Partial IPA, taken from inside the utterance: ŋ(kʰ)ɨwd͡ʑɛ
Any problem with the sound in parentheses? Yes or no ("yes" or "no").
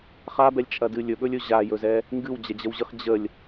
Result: yes